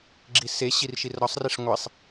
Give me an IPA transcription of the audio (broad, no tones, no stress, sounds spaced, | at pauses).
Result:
ɡ͡ǁ i s e ɕ i r ʃ i r ɾ ɒ sˤ r e ʂ ŋʷ e sˤ